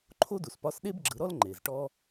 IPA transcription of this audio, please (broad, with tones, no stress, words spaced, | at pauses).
ǃʰo˥du˩spɒ˧˥s ɗe˥b ɡ͡ǁɯ˩˧ɾɔ˥l ŋ͡ǃe˩zʈɔ˥